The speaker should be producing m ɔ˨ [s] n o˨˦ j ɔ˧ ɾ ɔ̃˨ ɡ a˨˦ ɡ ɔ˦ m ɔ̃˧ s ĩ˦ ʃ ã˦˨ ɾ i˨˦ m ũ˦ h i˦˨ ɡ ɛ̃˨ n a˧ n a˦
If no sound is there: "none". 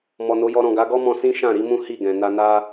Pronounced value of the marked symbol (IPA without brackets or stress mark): none